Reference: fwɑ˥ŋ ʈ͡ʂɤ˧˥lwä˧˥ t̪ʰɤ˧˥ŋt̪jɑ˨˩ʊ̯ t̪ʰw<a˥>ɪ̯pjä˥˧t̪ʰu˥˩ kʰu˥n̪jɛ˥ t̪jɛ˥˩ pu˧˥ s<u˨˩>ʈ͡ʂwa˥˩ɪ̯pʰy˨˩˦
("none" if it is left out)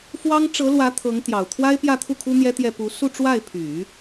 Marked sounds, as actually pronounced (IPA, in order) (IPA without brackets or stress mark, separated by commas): a˥, u˥˧